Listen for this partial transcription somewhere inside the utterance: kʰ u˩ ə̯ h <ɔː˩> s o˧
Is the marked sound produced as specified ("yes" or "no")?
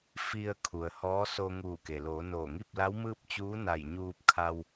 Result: no